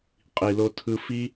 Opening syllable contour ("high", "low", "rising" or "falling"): low